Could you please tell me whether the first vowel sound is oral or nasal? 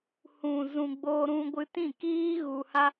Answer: nasal